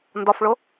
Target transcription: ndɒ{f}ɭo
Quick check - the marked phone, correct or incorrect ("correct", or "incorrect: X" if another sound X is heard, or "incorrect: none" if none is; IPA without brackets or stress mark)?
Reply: correct